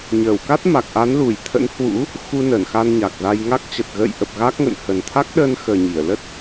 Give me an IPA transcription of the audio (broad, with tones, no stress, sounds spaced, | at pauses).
ɲ əː˧˩ w k a˦˥ t̚ m a˨˩ k̚ ʔ a˨˦ n l u˧˩ j t̪ʰ ə̰˧˥ n h w ṵ˧˥ | x u˧ n ə˧˩ n x a˧ n ɲ a˨˩ k̚ z a˧ j ŋ a˦˥ k̚ t͡ɕ ə˨˩ t̚ ɣ ə̰ː˧˨ j ʔ ə˨˩ p̚ ɣ a˦˥ k̚ ŋ ə̰˧˨ n h ə˨˩ n t̪ʰ a˦˥ k̚ ɗ əː˧ n x əː˨˩ ɲ i˧˩ ə̯ l ə˦˥ t̚